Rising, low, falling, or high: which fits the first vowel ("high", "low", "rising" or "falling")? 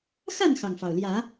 falling